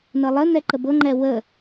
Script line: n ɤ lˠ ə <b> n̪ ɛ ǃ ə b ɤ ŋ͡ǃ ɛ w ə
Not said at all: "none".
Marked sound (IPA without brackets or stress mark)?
none